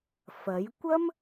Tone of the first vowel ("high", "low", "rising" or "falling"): rising